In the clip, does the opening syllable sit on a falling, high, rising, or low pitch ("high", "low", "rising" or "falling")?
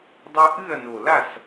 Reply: high